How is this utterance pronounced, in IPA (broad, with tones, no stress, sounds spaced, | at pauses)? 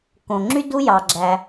k õ˩ ŋ͡ǁ y˥ d u˥ j ɑ˩ ɡ͡ǁ æ˩